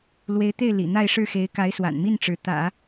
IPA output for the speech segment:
lwe˧˥ɪ̯t̪e˥˩ɪ̯ lḭ˨˩n̪a˥˧ɪ̯ ʂɻ̩˥˩xe˧˥ɪ̯ ka˧˥ɪ̯swa̰˨˩nmi˥˩n ʈ͡ʂɻ̩˧˥ t̪ä̰˨˩˦

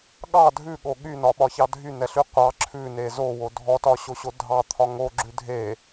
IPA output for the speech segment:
ɠɑ dʱʉɠo ɠynɒɓɒçɑ dʱynɛɬy qʷɑ ǁʰʉne zowo dʱɔtɒɕoɕo dʱɑt̪ʰɒ ŋoɡ͡ǁʉ dʱe

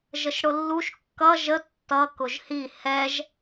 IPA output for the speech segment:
ʒəʃɽʊlːuʃ kːʌ ʒə tːʌ kʊʒhi hɛʒ

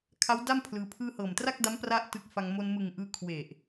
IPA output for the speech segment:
kʰa˦˥wda˥˩m pʰlɯː˧pʰɯː˥˩ hɤː˨˩mtra˥˩k̚da˦˥m pra˥˩ʔtɯ˦˥k̚fa˧ŋ mo˧nmɯ˨˩ŋʔɯː˧ kʰwe˨˩ʔ

